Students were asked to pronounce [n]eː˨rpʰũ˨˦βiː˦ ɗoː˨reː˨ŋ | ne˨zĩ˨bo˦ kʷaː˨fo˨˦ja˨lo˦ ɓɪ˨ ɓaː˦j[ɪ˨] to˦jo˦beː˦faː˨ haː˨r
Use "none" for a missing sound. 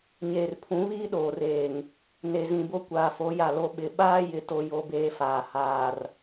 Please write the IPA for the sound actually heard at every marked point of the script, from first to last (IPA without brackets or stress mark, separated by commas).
ɲ, ɪ˨